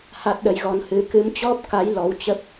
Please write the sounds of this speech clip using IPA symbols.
h a˦˥ t̚ ɗ ə˨˦ j ɣ ɔ˧ n h ɨ˧ k ɨ˨˦ m t͡ɕ ɔ˦˥ p̚ k a˨˦ j l ɔ˨˦ w t͡ɕ ə˦˥ p̚

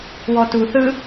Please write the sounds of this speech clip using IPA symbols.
w ɔ t u θ ɯ

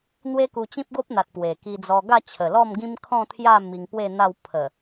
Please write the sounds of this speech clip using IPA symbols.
n̪ w e˦ k u˧ t͡ɕ ĩ˦ p̚ ɡ o˦ p̚ n̪ a˨ t̚ p w e˨˩ k i˧ d͡z ɔ˧ ɡ a˥˧ t͡ɕʰ ə˨˩ l ɔ˥˧ m ɡ ĩ˦ m kʰ ɔ̃˥˧ t̪ʰ j a˥˧ m i˧ ŋ p w e˥˧ n̪ a˥˧ w pʰ ə˨˩

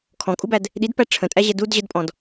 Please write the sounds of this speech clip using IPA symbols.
kʰ ɔ̃ kʼ u b æ d | ɗ i d p æ ʈ͡ʂʰ ə̃ tʼ æ ʑ ɛ d u d ʑ ə d pʼ ɔ̃ d

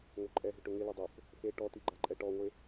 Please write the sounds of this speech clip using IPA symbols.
ŋ o ǃʼ ɛ ɦ ʏ ʈ ʊ ŋ ɪ l ʊ dˤ o f | f e ʈ ɔ t i ɡ͡ǃ a ǃʼ ɛ ʈ ɔ ŋʷ e

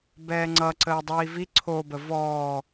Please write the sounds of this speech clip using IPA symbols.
b ɛː ŋ͡ǀ ʌ ǀ əː dˤ iː v i ǀʰ o b ə v ɔː

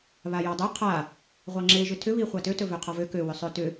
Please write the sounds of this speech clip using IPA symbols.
β a j ɑ dˤ ɵ qʰ a | ʁʷ ɑ ŋ͡ǁ e ʒ ʏ tʰ ʏ β i χʷ a t ø t ɵ v ø qʰ ɔ v ø k ø w ʏ sˤ ø t ʏ

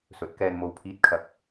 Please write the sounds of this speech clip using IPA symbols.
s ɵ˨˥ t̚ k ɛː˧ n m o˨ w pʰ iː˨˥ t̚ kʰ ɐ˨˥ k̚

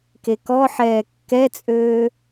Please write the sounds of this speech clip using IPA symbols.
k e k ɔ ħ ɛː kː ɛ t͡sʼ øː

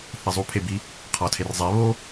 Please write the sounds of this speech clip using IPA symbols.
θ e zˤ u pʰ e b i | qʰ ɒ tʰ e r zˤ e β o

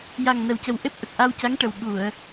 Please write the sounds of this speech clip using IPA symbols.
j a˨˩ ŋ n ə˨˩ w c ə˨˩ w ʔ e˦˥ p̚ ʔ ə˨˩ k̚ ʔ a˧ w c a˧˥ ŋ ʈ ə˨˩ w ɓ u˨˩˨ ə̯

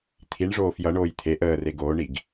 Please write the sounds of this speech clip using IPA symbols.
t̪ʰ i ɳ ʐ oː f j ʌ ɳ oː j t̪ʰ e ʔ əː r e ɡ oː ɳ i ɡ

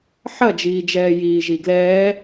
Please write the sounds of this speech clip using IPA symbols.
ħ ɐ d͡ʒ iː d͡ʒ ɛː j iː ʒ i ɡ l ɛː

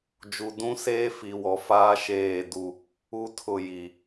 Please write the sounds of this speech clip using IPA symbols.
d͡ʒ u˨ d ũ˦ s eː˦ f i˨ w ɔ˨ f aː˦ ʃ eː˦˨ d u˦ | u˦ tʰ ʊ˦˨ j i˨

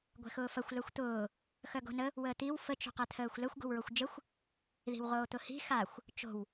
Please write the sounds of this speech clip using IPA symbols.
ɡʷ ɛ̤ x ʊː f ɐ xʷ l œ xʷ t̪ ʊː | x œ ɡ o̤ n ə | w əː t̪ i w f ə t͡ʃ o̤ q ɛ t̪ʰ əː xʷ l ə xʷ ɡ o̤ w ɹ o xʷ d͡ʒ ə xʷ | ð i̤ w ʁ oː t̪ ʊ h i̤ x a xʷ | t͡ʃ o̤ w

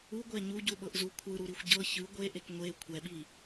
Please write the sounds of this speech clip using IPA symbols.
u ɡʷ ɛ ɲ u ɟ u ɓ ɤ ʔ z u kʷʰ ɯ ɾ u ɾ i xʷ ɟ ɤ ç ɯ ɡʷ e ʔ e k ŋʷ e kʷʰ ɛ ɓ i

